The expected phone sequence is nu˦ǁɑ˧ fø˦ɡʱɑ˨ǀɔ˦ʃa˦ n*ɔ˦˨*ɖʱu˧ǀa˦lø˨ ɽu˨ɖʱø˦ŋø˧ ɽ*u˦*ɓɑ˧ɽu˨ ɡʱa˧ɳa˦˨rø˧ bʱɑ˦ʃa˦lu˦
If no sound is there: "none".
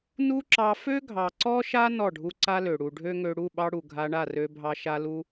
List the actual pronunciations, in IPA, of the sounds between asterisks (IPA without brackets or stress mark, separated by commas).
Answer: ɔ˦˨, u˦˨